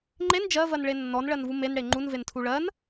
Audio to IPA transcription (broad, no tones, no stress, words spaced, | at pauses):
ŋ͡ǃen d͡ʒɜvɜnɭe nːɔnɭɜnvu menɽe ŋ͡ǃunventʰu ɭɜn